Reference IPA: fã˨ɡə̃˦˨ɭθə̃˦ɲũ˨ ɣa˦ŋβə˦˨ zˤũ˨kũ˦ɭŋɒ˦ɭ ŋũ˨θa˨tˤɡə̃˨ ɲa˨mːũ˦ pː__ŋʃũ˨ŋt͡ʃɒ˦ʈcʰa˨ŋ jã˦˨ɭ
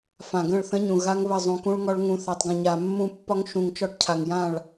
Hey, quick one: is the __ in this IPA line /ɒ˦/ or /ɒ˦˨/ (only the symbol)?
ɒ˦